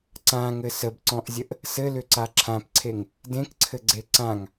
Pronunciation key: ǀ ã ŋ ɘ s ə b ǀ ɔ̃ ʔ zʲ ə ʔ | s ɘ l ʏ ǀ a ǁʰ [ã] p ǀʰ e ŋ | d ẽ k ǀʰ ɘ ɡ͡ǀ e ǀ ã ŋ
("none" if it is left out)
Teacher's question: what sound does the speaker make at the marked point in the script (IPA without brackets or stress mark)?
ã